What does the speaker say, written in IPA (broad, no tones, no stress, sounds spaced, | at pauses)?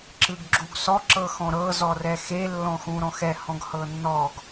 ǁ ɯ ɡ ɡ͡ǁ u ɡ s ɔ ǁ ɤ x ɔ̃ ɾ ɤ z ɔ r ɛ x e lː ɔ̃ x ũ ɾ ɔ̃ x ɛ h ɔ̃ ɡ h ɤ nː ɔ ɡ